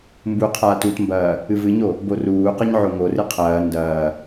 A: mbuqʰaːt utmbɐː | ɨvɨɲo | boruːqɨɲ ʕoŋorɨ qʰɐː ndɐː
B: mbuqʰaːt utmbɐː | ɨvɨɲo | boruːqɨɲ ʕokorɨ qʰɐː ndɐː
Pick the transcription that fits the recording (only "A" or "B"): A